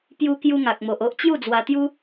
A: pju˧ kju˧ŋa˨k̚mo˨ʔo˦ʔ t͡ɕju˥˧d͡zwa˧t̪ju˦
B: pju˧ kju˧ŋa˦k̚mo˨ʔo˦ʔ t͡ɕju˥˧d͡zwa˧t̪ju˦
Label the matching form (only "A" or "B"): A